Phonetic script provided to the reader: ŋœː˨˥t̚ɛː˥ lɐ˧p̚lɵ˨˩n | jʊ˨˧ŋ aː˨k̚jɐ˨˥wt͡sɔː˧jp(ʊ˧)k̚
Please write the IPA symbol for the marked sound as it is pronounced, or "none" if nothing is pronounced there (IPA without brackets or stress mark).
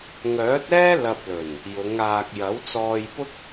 ʊ˥